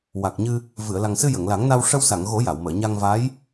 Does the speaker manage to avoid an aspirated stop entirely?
yes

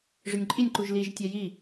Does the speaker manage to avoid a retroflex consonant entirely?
no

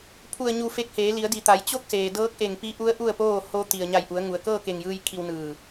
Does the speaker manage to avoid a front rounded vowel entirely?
yes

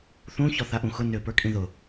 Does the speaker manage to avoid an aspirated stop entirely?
yes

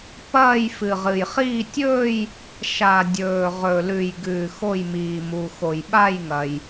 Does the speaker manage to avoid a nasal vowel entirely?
yes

